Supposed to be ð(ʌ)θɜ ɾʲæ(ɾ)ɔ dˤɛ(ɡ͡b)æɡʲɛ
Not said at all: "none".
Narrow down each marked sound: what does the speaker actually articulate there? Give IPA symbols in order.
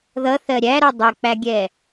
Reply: ʌ, ɾ, k͡p

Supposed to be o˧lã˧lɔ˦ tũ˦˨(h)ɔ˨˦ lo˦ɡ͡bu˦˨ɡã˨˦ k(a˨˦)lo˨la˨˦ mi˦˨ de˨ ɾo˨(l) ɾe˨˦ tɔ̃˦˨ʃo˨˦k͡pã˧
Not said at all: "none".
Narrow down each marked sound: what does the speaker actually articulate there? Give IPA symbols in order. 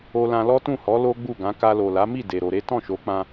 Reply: h, a˧, none

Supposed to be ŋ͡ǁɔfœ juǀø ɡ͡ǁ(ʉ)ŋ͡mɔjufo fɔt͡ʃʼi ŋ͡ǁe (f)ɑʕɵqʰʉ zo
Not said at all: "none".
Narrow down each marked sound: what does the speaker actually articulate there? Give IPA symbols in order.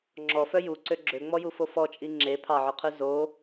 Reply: ø, pʰ

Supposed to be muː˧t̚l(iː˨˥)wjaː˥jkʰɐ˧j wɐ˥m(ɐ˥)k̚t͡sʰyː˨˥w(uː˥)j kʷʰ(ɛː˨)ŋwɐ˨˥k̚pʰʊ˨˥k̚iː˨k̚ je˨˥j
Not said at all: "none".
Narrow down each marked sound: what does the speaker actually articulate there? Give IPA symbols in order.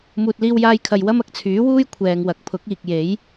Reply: iː˥, ɐ˨, uː˥, ɛː˨

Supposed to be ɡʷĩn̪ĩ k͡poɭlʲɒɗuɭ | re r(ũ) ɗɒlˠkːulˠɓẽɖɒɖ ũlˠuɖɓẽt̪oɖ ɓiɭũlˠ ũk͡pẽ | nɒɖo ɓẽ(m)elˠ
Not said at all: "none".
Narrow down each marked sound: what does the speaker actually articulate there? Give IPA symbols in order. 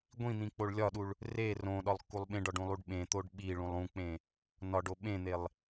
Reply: õ, n̪

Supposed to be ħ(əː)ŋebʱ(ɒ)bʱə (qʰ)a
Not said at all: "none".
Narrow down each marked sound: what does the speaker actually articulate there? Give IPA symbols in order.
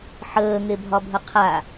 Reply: əː, ɒ, qʰ

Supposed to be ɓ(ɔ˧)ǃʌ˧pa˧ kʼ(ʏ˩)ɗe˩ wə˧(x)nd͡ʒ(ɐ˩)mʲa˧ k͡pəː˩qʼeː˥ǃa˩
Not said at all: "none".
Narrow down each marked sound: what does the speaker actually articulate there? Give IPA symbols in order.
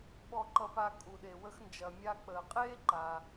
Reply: ɔ˧, u˩, x, ɐ˩

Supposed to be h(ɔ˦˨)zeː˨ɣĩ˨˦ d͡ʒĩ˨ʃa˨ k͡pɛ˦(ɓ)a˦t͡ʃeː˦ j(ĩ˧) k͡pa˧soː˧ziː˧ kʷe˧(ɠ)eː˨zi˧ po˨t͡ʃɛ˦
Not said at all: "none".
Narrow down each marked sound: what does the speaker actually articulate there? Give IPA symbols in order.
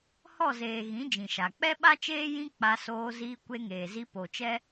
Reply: ɔ˦˨, ɓ, ĩ˦, ŋ

